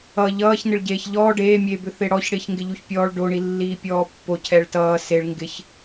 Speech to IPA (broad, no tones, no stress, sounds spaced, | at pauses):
ʌ ʎ ʌː ç n ɪ ɭ ɟ eː ç ʎ ɔː ɖ eː mʲ eː b ʏ θ e ɽ ɔ ç ɽ ɪː ç ŋ ɡ ɪ ʎ u ç pʲ ɔː ɭ ɖ o ɳ i lː iː pʲ ɔː pː o cʰ ɛ ɭ t ʌː s e ɭ ŋ ɡ ɪ ç